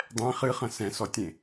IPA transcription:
dˤ ɛ̃ χ ɨ χ ɐ̃ s ɛ̃ s ɔ tʲ ẽ

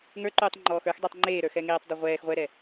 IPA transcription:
ŋ ə˞ ǃ uː tˤ ŋ͡ǃ ɔː x ə˞ x dˤ e tˤ ŋ͡ǃ eː ɾ ə˞ x ɛ ŋ eː tˤ dˤ o ʁʷ ɛː x ʁʷ ɛ ɾ ɛ

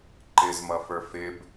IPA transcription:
ǃ ɪ z m ʌ f ə˞ f ɪ b

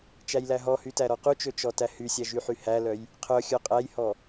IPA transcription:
t͡ʃ æ j l æ ɦ ɔ h y t æ ɾ ɔ q u t͡ʃ ɵ t͡ʃ ɔ t æ h y sʲ æ ʒ y ħ y h æ l œ j | qʰ œ xʲ œ qʼ æ j h ɔ

